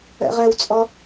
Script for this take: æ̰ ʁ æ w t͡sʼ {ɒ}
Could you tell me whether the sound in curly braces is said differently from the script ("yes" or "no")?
no